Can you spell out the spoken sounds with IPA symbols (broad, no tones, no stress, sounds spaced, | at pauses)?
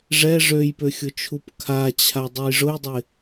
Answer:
ʐ ɛ ʐ ø j p ø xʲ ʊ t͡ʃʰ u p kʰ a t͡ɕʰ a dˤ ʊ j ʐ ʊ j dˤ ɪ